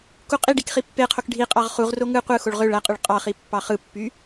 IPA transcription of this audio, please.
k u qʼ i ɖ i k χ i pː e qʰ o k ɖʱ i qʼ ɑ ʁ χ u ʁ r o ŋ ɯ qʷ ɯ x o ɭ ʁ ø ɭ æ qʼ y ɭ qʼ ɑ χ i pː ɑ χ ɯ pː y

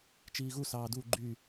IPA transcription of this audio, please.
t͡ʃ iː ɣ u s ɑː d u ɡ͡ǃ y

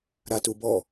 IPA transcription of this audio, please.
ɾ a t u b ɔ

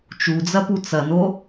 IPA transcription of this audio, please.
t͡ʃ u d͡z ɐ p u t͡s ɐ n o

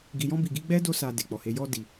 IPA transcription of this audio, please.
ɡ i˨ j ɔ̃˧ b i˨ ɡ i˧ ɡ͡b ɛ˦ d o˧ s a˨ d e˨ k͡p ɔ˨ h e˨˦ j ɔ˧ d i˨

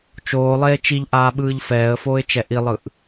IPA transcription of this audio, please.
t͡ʃ oː lˠ eː t͡ʃ i ʎ ʔ aː ɓ ɯː ʎ f ɛː ə̯ f oː ɪ̯ t͡ʃ ɛ ʔ i lˠ ɯ ʔ

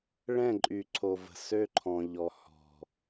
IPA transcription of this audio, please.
ɭ ɛ̃˦˨ ǃʼ y˨ ǀʰ o˨ v ə̤˨ s ø˦ ǃʰ ɔ̃˨ ʎ ɔ˨ h ɔ̤˨

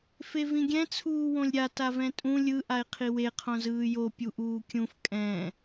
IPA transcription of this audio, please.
f e v ĩ ɡʲ ɛ̃ t͡sʰ uː w õ lʲ ɾʲ a t a v ɛ̃ tʼ ũ lʲ ɯ ʔ a e̯ qʰ i w e qʰ õ z ɯː j o pʲ u ʔ uː kʲ ũ f kʼ ɛ̃

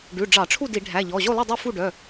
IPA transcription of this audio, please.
ɖ ʉ˩˧˩ ɖ͡ʐ ɑ˧˩˧ ʈ͡ʂʰ u˥˨ d i˧˩˧ ɖʱ æ˩˧˩ ʎ ɔ˩˧˩ ʑ o˥˨ lˠ e˥˨ dˤ o˥˨ f u˥˨ ɖ œ˩˧˩

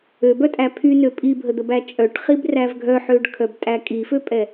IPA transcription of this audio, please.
ø b œ tʼ æ pʰ y n ø pʼ i bʱ ə d̪ ə b æ t͡ʃʼ œ ʈ χ i b r æ v ɡʱ œ ħ ø ɖ kʰ œ b tʼ æ kʼ i f ø pʼ ɛ

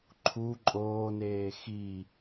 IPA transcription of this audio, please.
ǃʰ u ǃʼ oː n eː x i

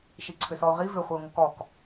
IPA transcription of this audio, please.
ʃ i ǀʰ ʏ s ɔ ʊ̯ ʁ i v ʏ χʷ ɪ ʊ̯ ŋ o k ɔ k

